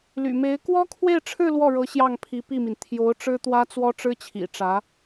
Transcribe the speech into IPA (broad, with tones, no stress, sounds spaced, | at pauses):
l y̰˨˩ m e˧˥ ɪ̯ k w ɔ˥ kʰ w e˥˧ ɪ̯ ʈ͡ʂʰ ɻ̩˥˧ l w ɔ˥˩ ɻ ɤ˧˥ ɕ j ɑ˥˩ ŋ pʰ i˧˥ p i˥˩ m i˩ n t̪ʰ j o˧˥ ʊ̯ ʈ͡ʂ ɻ̩˥ t̪ w ä˥ t͡s w ɔ˥ ʈ͡ʂ ɻ̩˥ t͡ɕʰ ḭ˨˩ ʈ͡ʂ ä˧˥